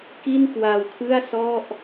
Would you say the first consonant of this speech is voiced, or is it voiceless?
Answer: voiceless